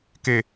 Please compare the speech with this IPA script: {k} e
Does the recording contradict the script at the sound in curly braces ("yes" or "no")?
no